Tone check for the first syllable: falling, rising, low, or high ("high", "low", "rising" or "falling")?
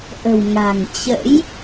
low